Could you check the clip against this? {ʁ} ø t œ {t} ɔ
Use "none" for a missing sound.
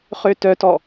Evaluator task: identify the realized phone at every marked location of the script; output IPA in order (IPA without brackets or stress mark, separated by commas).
χ, t